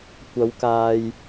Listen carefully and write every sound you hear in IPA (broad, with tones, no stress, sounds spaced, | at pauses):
kʷ ɐ˨˧ w k aː˨ j